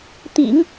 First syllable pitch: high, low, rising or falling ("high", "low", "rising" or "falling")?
low